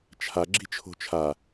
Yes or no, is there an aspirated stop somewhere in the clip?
yes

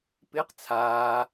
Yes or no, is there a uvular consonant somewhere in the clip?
yes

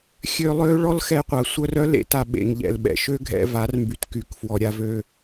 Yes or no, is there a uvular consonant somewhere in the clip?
yes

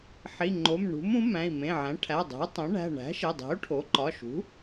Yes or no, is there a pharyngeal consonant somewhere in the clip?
yes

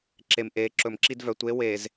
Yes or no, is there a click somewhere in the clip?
yes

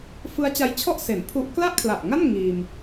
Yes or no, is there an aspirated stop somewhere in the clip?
yes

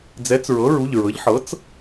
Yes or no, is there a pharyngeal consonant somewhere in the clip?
yes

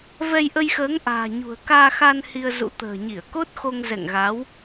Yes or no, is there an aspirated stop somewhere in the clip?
no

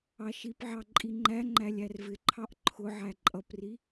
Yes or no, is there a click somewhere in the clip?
yes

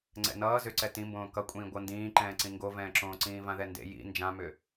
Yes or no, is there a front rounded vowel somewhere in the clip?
yes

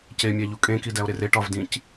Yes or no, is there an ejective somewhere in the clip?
yes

